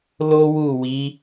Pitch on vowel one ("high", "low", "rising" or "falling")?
high